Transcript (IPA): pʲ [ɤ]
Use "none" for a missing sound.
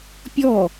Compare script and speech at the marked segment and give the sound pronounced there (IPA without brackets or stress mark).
ɔ